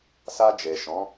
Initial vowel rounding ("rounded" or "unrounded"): unrounded